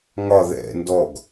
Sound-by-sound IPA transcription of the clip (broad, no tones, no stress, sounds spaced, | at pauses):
ŋ ɒ ð ɛ̰ n d ɔ ɡ